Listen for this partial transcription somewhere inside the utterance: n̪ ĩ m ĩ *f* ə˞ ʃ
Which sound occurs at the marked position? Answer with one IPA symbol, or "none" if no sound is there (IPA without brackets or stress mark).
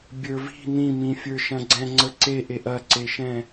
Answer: fʲ